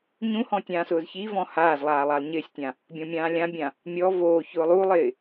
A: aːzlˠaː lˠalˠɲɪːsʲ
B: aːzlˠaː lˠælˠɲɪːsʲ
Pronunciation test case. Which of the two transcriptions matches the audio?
A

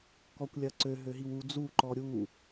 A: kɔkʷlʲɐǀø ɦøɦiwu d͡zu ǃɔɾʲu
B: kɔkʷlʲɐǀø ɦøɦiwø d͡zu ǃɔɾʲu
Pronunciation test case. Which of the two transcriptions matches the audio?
A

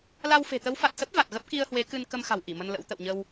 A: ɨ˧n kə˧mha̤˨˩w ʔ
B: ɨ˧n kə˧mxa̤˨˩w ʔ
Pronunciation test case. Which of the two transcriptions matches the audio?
B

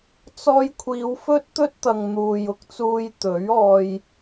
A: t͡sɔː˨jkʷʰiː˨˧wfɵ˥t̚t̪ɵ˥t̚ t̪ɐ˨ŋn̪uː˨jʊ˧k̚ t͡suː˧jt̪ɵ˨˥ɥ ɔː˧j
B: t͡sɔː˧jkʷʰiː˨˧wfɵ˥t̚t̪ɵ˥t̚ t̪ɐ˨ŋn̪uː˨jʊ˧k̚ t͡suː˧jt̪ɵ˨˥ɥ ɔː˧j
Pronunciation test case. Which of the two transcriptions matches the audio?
B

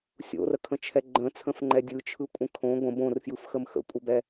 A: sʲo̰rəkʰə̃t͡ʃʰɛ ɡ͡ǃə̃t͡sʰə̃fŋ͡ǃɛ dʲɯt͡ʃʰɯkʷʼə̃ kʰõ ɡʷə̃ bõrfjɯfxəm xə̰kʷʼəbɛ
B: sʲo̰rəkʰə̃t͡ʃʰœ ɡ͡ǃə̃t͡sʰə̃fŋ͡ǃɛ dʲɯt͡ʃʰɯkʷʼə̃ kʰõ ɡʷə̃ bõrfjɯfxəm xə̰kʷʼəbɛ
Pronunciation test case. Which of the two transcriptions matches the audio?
A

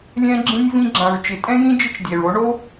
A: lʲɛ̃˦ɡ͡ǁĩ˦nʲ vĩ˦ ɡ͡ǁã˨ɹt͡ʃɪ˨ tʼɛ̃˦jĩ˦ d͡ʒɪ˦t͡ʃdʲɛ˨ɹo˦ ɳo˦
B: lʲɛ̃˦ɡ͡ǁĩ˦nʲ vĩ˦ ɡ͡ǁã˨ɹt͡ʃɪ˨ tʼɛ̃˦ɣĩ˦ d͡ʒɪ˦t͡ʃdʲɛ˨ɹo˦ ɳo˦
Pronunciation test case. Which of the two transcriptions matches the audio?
A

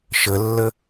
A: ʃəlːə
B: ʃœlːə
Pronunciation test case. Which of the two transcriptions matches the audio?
A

